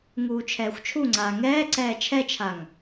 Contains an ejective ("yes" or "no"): no